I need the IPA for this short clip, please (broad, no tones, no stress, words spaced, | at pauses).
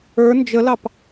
ə˞ nd͡ʒəlɑp